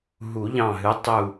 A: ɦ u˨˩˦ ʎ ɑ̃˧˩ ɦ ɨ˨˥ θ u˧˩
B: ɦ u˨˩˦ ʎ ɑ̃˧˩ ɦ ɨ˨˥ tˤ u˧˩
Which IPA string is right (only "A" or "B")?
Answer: B